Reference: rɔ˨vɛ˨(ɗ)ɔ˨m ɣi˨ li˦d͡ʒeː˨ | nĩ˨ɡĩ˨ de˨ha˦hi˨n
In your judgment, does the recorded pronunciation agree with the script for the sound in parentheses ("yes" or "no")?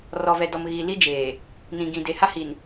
no